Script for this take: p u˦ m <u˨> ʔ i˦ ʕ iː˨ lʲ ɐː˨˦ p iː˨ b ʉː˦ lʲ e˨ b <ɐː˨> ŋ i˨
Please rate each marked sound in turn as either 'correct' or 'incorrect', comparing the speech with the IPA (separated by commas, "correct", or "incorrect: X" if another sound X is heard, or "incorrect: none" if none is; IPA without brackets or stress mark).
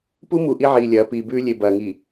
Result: correct, correct